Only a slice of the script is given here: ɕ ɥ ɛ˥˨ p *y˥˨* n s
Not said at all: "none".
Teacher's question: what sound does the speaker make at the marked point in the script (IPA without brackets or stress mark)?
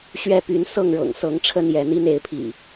y˨˦